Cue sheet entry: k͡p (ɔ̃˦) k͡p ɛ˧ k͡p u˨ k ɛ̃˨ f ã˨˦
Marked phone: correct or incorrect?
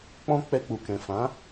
correct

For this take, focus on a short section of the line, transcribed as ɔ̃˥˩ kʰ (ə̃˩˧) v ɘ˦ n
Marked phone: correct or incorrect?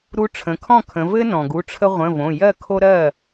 correct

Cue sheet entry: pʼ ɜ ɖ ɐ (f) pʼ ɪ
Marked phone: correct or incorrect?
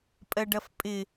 correct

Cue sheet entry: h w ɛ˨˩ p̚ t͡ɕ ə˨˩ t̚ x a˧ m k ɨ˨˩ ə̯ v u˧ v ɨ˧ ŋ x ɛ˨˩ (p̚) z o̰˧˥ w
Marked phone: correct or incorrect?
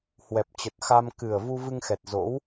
incorrect: t̚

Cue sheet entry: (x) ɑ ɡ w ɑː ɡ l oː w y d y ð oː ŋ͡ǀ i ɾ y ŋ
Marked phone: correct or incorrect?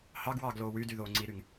incorrect: h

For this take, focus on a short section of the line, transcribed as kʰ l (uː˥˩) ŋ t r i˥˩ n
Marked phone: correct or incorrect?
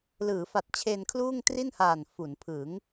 correct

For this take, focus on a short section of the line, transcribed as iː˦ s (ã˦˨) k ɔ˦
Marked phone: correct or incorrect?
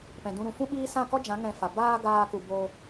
correct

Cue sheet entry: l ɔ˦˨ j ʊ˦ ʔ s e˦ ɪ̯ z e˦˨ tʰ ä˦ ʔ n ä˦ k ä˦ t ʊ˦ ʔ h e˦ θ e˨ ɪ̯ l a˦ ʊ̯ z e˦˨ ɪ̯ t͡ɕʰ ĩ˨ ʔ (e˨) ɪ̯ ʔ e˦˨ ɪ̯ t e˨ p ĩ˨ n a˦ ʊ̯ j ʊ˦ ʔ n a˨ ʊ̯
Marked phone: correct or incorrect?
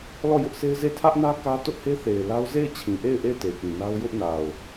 incorrect: e˦˨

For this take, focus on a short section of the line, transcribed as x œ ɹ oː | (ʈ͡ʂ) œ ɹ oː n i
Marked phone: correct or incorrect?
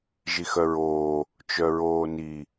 incorrect: t͡ʃ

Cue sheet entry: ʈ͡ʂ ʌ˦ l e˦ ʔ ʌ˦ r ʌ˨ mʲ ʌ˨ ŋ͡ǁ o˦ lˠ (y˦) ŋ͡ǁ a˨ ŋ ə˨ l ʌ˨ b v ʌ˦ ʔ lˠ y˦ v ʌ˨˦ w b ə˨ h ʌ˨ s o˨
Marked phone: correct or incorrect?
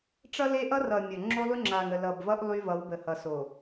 correct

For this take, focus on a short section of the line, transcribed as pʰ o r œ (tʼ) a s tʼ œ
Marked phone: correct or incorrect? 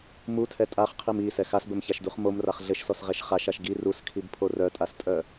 correct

